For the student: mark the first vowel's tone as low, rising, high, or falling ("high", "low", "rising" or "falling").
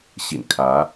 low